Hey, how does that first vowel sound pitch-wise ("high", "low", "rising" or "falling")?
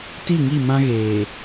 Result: falling